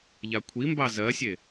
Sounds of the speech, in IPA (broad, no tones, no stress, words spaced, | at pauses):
ʎakʷʰimbɑ zɜsʲe